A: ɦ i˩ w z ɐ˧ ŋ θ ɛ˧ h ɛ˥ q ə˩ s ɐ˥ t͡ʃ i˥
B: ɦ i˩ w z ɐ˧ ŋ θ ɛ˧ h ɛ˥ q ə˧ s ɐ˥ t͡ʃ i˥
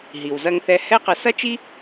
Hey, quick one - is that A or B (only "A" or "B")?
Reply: B